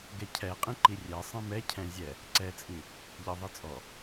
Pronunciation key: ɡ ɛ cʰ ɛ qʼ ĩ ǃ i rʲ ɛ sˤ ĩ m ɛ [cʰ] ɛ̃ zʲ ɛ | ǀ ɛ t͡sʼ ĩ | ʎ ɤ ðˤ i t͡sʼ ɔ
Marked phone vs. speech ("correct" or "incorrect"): correct